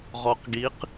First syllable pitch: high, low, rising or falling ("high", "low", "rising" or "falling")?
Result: low